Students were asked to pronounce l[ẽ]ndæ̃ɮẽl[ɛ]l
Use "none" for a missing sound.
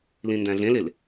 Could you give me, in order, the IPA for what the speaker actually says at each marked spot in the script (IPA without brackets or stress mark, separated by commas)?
ĩ, e